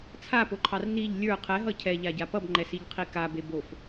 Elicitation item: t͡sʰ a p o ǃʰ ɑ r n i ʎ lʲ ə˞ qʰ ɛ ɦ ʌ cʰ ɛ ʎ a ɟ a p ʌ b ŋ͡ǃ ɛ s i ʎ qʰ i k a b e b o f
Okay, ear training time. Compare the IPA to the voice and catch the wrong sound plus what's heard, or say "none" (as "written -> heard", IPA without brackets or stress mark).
none